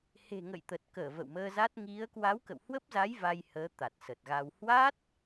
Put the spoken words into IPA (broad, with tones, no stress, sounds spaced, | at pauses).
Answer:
h e̤˨˩ ŋ ə̰˧˨ j t̪ ə˨˩ t̚ k əː˧˩ v ə̰˧˨ w m əː˧ z a˦˥ t̚ ŋ i˨˦ ə̯ k w a˨˦ w k ə̰˧˨ w h w ə˦˥ p̚ z a˨˦ j v a˧ j h əː˨˦ t̪ a˨˩ t̚ s ə˨˩ t̚ ɣ a˧ w h w a˦˥ t̚